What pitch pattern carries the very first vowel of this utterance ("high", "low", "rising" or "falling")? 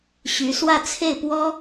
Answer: rising